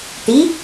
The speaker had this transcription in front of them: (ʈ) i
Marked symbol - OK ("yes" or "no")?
yes